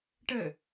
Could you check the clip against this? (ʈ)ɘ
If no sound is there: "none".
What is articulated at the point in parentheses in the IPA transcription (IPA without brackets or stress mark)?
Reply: ʈ